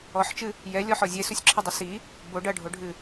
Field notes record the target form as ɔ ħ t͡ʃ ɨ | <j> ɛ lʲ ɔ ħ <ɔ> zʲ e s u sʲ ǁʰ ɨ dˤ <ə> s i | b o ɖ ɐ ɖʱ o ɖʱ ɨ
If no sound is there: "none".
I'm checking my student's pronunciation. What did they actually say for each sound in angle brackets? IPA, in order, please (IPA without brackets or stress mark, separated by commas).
j, ɔ, ɐ